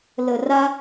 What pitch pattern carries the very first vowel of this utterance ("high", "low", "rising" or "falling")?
low